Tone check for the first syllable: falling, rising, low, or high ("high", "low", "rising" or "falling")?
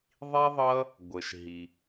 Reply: high